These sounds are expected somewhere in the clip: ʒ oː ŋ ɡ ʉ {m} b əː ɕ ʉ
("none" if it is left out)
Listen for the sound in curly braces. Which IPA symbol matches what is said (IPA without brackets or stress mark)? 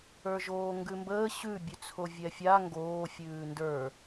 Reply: m